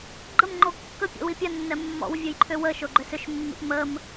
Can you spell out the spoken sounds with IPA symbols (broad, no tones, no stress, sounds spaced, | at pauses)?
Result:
ɡ͡ǃ ə m ŋ͡ǃ o kː ə pʲ ɔ̰ w i pʲ a nː ɛ mː ɔ̰ w vʲ o j ǃʰ ʏ w ə ʃ o ɡ͡ǃ ʏ s ʏ ʃ mː ḭ p m ə m